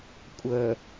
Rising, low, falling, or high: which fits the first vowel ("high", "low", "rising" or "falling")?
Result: low